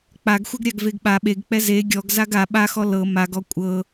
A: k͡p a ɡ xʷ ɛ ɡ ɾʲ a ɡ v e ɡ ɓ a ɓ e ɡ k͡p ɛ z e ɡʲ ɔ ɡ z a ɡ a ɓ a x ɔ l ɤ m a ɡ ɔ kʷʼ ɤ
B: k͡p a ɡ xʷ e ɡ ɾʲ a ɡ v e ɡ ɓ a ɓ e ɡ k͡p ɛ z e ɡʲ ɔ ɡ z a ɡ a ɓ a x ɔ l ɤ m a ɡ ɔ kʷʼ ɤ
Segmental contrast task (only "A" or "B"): A